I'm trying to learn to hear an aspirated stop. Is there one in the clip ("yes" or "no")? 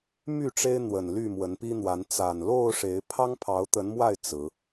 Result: yes